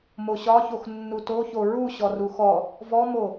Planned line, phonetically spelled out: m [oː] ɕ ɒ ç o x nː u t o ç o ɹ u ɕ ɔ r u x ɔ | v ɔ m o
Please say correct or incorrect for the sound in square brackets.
incorrect: o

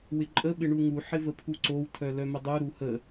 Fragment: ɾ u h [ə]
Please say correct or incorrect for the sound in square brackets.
correct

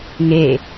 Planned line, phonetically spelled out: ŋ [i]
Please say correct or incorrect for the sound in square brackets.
incorrect: e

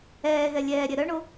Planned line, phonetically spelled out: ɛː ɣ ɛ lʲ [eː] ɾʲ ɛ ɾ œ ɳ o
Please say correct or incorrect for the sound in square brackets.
incorrect: ɛː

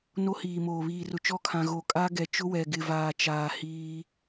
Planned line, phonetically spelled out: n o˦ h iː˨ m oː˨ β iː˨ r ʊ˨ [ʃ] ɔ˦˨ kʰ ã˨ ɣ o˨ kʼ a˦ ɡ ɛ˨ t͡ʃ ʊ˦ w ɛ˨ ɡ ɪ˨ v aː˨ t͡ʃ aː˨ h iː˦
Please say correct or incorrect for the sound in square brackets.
incorrect: t͡ʃ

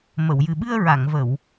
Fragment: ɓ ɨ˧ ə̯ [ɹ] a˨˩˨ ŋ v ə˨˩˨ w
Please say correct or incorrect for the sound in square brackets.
correct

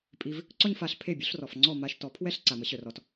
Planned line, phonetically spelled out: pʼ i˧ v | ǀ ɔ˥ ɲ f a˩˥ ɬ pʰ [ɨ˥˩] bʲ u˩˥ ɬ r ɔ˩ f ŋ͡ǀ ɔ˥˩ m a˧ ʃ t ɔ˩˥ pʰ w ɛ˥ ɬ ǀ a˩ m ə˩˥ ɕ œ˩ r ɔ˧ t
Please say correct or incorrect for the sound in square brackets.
incorrect: e˥˩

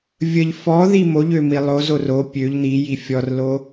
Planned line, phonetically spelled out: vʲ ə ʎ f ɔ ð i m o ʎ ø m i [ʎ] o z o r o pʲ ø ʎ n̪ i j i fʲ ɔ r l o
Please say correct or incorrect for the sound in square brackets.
incorrect: lˠ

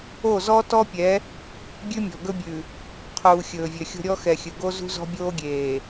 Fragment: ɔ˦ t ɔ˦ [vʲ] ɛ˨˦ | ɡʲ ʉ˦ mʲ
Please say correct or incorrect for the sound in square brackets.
incorrect: pʲ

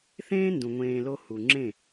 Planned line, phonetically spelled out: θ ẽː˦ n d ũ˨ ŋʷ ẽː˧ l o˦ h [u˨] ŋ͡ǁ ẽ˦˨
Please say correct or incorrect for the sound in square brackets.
correct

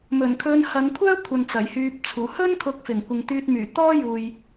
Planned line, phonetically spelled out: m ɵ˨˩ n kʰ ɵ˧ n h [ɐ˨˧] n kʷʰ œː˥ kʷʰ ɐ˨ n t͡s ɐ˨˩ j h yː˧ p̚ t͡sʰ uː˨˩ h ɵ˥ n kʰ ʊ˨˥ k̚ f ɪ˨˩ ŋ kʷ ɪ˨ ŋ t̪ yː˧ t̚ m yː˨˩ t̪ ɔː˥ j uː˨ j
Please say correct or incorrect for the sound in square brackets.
correct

